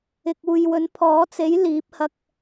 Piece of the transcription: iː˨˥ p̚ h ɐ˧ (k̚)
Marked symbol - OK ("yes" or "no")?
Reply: yes